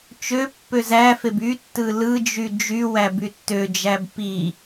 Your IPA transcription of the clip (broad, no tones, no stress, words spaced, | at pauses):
t͡ʃø pːøzæfeb y tːɯlɯd͡ʒy d͡ʒywæ bytːød͡ʒæb pi